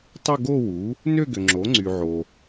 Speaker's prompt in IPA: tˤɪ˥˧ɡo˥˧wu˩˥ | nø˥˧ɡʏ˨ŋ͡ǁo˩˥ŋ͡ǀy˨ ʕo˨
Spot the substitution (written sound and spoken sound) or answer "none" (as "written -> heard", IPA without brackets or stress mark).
none